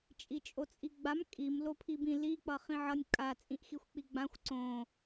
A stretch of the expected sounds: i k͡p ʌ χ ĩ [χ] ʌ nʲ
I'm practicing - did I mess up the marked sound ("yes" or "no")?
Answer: yes